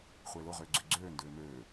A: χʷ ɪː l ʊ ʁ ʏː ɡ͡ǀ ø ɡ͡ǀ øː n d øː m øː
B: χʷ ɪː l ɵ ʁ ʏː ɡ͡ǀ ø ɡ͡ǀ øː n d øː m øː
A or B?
A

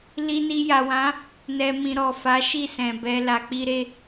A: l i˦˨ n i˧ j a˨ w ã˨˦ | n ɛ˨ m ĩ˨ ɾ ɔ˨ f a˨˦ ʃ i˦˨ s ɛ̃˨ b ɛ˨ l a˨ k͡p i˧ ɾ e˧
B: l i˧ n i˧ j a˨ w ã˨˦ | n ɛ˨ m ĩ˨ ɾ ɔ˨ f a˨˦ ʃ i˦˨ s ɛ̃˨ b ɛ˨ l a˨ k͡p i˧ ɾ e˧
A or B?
B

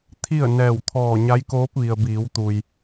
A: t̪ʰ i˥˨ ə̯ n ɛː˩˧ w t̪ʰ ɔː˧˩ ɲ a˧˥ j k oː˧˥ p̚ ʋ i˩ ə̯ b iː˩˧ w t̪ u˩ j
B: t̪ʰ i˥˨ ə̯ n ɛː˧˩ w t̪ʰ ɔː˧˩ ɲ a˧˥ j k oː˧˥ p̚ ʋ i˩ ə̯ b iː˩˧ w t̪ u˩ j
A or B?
B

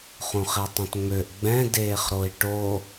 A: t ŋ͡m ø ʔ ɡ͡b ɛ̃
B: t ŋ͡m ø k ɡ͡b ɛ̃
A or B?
A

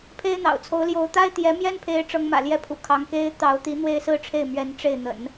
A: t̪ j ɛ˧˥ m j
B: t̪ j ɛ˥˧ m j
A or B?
A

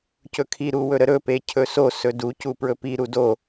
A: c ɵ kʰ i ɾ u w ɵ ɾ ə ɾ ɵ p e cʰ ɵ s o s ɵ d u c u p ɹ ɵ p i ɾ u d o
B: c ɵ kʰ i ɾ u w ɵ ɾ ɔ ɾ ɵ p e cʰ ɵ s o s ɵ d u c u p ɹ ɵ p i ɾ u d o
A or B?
A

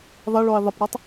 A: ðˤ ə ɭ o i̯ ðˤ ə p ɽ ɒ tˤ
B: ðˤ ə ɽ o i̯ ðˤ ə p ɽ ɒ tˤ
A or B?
A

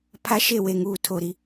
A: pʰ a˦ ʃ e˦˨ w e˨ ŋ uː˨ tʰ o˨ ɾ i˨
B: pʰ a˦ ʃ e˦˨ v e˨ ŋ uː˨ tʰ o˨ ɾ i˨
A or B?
A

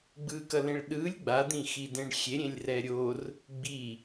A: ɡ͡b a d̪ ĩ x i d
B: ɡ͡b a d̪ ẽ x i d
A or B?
A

